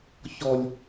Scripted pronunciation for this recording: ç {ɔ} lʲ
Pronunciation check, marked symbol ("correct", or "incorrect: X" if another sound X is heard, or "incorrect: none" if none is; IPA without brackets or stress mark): correct